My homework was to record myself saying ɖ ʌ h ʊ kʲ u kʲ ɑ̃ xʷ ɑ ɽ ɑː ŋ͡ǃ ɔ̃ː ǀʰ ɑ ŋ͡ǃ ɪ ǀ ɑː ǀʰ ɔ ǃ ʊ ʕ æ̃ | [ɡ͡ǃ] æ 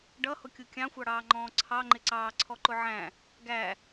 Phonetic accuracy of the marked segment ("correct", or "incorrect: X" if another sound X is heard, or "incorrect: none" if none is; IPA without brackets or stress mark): incorrect: ɡ